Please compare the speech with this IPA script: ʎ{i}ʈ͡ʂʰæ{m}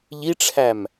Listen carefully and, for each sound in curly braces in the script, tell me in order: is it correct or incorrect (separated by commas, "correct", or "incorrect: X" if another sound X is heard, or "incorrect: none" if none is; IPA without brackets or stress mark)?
correct, correct